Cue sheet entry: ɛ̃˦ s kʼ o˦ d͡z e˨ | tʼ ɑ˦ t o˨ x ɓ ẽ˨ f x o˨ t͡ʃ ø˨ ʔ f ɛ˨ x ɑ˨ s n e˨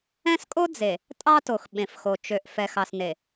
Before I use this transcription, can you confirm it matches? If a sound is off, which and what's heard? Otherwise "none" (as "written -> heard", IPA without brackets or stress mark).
none